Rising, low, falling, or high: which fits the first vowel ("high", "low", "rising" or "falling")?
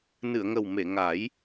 low